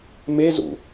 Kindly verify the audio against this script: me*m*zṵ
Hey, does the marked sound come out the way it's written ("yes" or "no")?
no